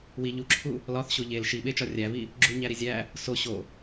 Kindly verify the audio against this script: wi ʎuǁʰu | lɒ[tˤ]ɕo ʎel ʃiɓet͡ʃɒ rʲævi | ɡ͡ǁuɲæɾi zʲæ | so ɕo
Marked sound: incorrect: θ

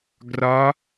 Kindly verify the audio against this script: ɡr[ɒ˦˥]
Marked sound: correct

